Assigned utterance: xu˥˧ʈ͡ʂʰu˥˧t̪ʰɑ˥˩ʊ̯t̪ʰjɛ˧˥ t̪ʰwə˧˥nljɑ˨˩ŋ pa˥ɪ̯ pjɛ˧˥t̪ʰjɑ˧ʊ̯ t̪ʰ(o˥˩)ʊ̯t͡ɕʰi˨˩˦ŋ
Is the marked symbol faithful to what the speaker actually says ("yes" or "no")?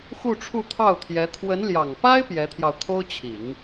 no